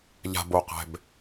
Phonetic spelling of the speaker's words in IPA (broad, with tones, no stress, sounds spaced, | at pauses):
ʎ a̤˩ b o˩ q ɛ̤˩ b